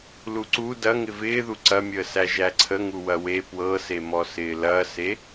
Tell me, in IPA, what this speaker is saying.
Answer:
l u ǀ u d ɐ ŋ ɪ v ɪː ð u ǀ ɐ mʲ əː s æ ʒ æ ǀʰ ə ŋ u w ɐ w e p w ɤ s e m ɔ s ɪː l ɐ s e

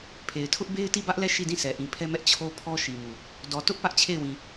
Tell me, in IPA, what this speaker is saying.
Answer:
pʰ e˨ ɪ̯ tʰ ʊ˦ ʔ b e˦ ɪ̯ t i˦˨ b ä˦ ʔ l ɛ˦˨ ʃ i˦˨ d ĩ˦˨ sʰ ɛ˨ ʔ ĩ˨ pʰ ɛ˦ m ɛ˦ ʔ t͡ɕʰ o˦ pʰ ɔ˦ ʃ i˨ m u˨ | d ɔ˨ t ʊ˦ ʔ p ä˦ ʔ t͡ɕʰ e˦˨ ɪ̯ w ĩ˨

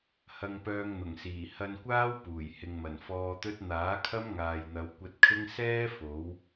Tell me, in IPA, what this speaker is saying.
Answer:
h ɐ˧ ŋ p œː˧ ŋ n̪ ʊ˨˩ ŋ s iː˨˩ h ɐ˧ n kʷ aː˥ w p uː˨˩ j h ɪ˨ ŋ m ɐ˨˩ n f ɔː˧ t̪ ɵ˥ t̚ n̪ aː˨˥ kʰ ɐ˥ m ŋ aː˨ j n̪ ɐ˨˧ w kʷ ɐ˧ t̚ kʰ ɪ˥ ŋ s ɛː˥ f o˨˥ w

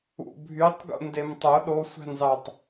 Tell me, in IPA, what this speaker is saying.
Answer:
ṵ bʱ y tˤ ɡ ṵ n d e m tˤ o ɗ o sʷ æ̤ n z ɑ tˤ

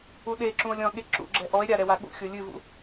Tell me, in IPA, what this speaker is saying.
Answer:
u ɗ e ǁ ũ o̯ lʲ ɔ̃ ɠ e ǁ ṵ ɡ͡ǁ ɛ ʔ ɔ e̯ ɾʲ a ɾ ɛ w a ɠ ṵ xʲ o lʲ ɨ v ṵ

